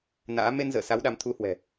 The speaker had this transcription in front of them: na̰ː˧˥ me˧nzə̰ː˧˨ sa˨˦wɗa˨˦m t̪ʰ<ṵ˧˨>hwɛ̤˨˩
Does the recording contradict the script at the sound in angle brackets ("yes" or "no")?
yes